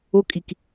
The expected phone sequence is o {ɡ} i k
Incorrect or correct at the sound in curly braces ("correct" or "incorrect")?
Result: incorrect